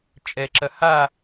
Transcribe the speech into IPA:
t͡ʃʼ ɛ ǁ ɐ h a

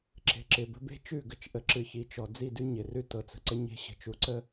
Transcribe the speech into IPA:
ǁ e̤˨ ǁ ɪ˨ b ə̤˦ b e̤˦ t͡ʃ ʉ˦˨ ɡ ə˨ t͡ʃ ʔ ə˨ ǁ ɨ˨ ç i˨˦ t͡ʃ ɔ˨ d͡z i˦˨ d ʉ˦ ɲ ɪ˨ r ʉ˦ t ɤ˨ t͡s ə̤˨ ǀ ə˦ ɲ e̤˦ ɕ ə̤˨ t͡ʃ u˨ ǀ ə˦

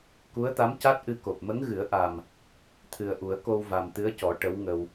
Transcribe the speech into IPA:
k u˧˥ ə̯ t̪ a˧˥ m c a˦˥ t̚ ʔ ɨ˧ k o˨˩ p̚ m ə˧˥ ŋ ɣ ɨ˨˩˦ ə̯ ʔ a˨˩ m | t̪ʰ ɨ˨˩ ə̯ ʔ u˨˩˦ ə̯ k o˧ w v a˨˩ m t̪ ɨ˧˥ ə̯ c ɔ˨˩˦ ʈ ə˧˥ w ŋ ə˧ w

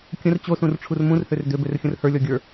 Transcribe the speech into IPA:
kʲ ə̃ r t͡ɕ o s ũ r ʈ͡ʂʰ u r m ũ r h ø r d ø b ø r xʲ ə̃ r h ə˞ lʲ ɔ ɡʲ ə˞

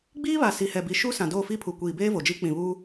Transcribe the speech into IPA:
ɡ͡b iː˦ β a˨ s i˨ h ɛ˨ b i˨ ʃ u˦ s ã˨ d oː˦˨ f i˦ pʰ u˨ kʷ iː˨ b eː˦ v o˨ d͡ʒ i˦ k͡p ĩ˨ β uː˦

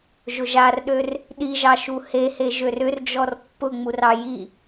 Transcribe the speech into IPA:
ʒ ʊ ʒ a r ɗ ø r | ɗ i ʒ ɑ ʃ u h e h e ʒ ø r ʏ r d͡ʒ ɔ r pː ʊ ŋ͡m u r ɑ j i

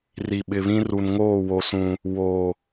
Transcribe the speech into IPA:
r i˨ ɓ ɪ˨ β ĩ˦ r u˨ n ŋ oː˦˨ w o˨ s ũ˨ | w o˨

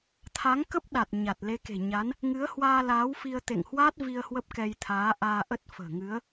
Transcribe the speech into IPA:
t̪ʰ a˨˦ ŋ k ə˦˥ p̚ ɗ a˨˩ t̚ ɲ a˨˩ t̚ l e˨˦ k e̤˨˩ ɲ a˨˦ n | ŋ ɨ˨˦ ə̯ h w aː˧ l aː˨˦ w f i˧ ə̯ t̪ ḛ˧˨ ŋ h w a˦˥ t̚ v i˧ ə̯ h w ə˦˥ p̚ k ɛ˧ j t̪ʰ aː˨˦ ʔ aː˧ ʔ ə˦˥ t̚ f ə̤ː˨˩ ŋ ɨ˨˦ ə̯

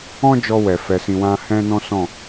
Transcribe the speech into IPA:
ɔ̃˦ d͡ʒ ɔ˧ w ɛ˨ f ɛ˨ s ĩ˨ w ã˧ h ɛ̃˦ n ɔ̃˦ s ɔ̃˦˨

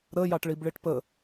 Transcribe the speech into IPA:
ɾ ə j ɑ ʈ ɭ i b ɭ i ʈ p ə

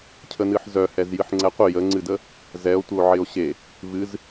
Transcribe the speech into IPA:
cʰ ə n ɨ ħ z œ h ɛ z j ɨ ħ ŋ͡ǀ ɛ qʷ ɪ j ə ŋ͡ǀ ɨ d ə | z ɛ o̯ tʷ ə o̯ ʕ ɪ o̯ ɕ e | v ɨ z

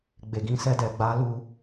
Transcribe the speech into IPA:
ɡ͡b e˨ ɡ ĩ˧ s ɛ˧ d ɛ˨ ɡ͡b a˨˦ l u˧

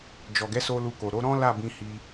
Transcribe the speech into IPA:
d͡ʒ ɔ˨ ɡ ɛ˨˦ s o˧ l u˧ k o˨ ɾ o˨˦ ɾ ɔ̃˦ l a˦˨ b ĩ˧ h i˧

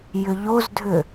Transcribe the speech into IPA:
j ʏ ʎ o z dʱ ʏ

